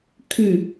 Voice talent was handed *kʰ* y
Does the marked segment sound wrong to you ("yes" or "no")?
no